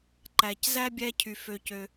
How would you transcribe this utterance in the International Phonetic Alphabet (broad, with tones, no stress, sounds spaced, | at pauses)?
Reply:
ǃ æ˩ c z æ˥ bʲ æ˧ cʰ y˩ f ø˩ c ø˩